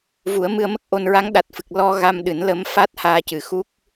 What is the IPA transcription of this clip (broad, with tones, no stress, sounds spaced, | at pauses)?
v u˨˩˦ ə̯ m ɨ˧ ə̯ m ə˦˥ k̚ ʔ o˧ n ɹ a˧˥ ŋ ɗ a˨˩ t̚ f ɨ˨˩ k̚ l ɔ˧ ɣ a˧ m ɗ ɨ˨˩˦ n l ə˧˥ m f a˦˥ t̚ h aː˧ c ɨ˨˩ x u˦˥ k̚